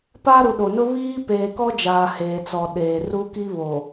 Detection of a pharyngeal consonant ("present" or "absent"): absent